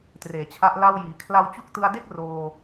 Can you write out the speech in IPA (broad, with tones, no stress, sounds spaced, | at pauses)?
t r eː˨˩ t͡ɕʰ a˦˥ ʔ l a˥˩ w j iː˩˦ kʰ l a˧ w t͡ɕ u˦˥ k̚ t ɯ˧ a̯ d e˥˩ k̚ r oː˧